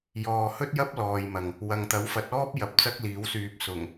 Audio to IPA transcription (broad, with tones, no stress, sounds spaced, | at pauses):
j ɔː˨ h ɵ˥ t̚ j ɐ˥ p̚ l ɔː˨ j m ɐ˨ ŋ | w ɐ˨ ŋ t̪ ɐ˨˥ w f ɐ˨˥ t̚ ɔː˥ p̚ j ɐ˨ p̚ t͡s ɐ˥ k̚ l iː˨˥ w s yː˧ p̚ s ʊ˨˩ ŋ